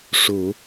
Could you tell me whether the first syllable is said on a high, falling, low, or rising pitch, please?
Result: low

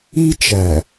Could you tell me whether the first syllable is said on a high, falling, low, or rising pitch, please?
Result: high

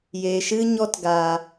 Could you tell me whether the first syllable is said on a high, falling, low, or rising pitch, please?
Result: low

